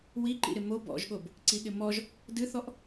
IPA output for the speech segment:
w i ǃ ḭ ɾ ɪ m o b ɔ̰ ʒ ɠ o b | ǀ i ɠ ɪ m ɔ ʒ | d ɨ θ ɔ ʔ

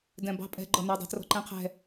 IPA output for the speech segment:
d ɛ̃ b ɑ̤ pʼ ɛ̤ ɡ͡ǃ ɔ n æ dˤ ɑ̤ t r ɔ̤ ǃ ɛ̃ qʰ ɛ̤

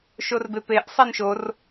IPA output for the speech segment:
ʃ o r b e p e ʔ sˤ ɛ n ʃ o r

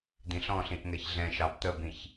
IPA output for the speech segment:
d̪ ĩ ɬ ɔ̃ ɬ ĩ ʔ ŋ ɛ ç ɮ ɛ̃ ʃ ɑ b t̪ ə b ĩ ç

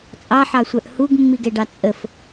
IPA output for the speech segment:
t͡sʼ ɑ ħ ɑ sʷ œ ʔ h u ɡ mː i ɡ ɛ ɖ ɑ t͡sʼ ə f

